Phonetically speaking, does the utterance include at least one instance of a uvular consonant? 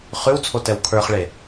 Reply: yes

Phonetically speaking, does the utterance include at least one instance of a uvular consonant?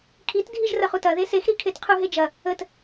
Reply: yes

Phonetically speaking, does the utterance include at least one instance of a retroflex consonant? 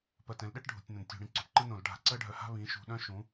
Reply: yes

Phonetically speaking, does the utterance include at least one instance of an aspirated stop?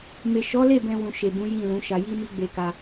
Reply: no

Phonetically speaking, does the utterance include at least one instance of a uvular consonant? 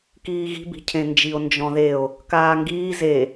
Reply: no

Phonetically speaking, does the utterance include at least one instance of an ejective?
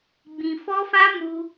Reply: no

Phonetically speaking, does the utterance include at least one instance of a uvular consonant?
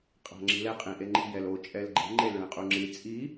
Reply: yes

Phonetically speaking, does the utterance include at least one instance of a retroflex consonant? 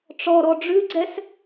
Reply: yes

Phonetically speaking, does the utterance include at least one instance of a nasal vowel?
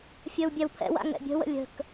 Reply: no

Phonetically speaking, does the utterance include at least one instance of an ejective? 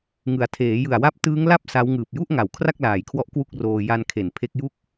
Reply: no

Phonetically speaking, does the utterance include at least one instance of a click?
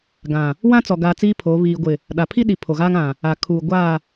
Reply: no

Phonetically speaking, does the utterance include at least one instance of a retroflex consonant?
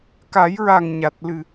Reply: no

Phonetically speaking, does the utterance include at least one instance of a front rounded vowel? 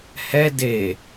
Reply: no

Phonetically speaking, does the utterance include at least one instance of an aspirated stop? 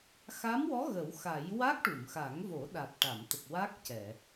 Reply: no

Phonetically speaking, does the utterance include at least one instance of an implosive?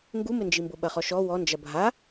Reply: yes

